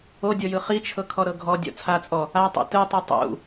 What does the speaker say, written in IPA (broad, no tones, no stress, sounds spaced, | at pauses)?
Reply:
o dʲ ɔ j ɯ χ i t͡ʃʰ ɤ kʰ ɔ ɾ ɤ ɡʱ ɔ dʲ ɔ̰ t͡sʰ a t͡sʼ ɔ | a tˤ ṵ t ɯ tˤ ɯ tˤ ṵ